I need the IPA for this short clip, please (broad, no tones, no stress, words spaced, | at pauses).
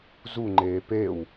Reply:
zuŋ͡ǃeː pew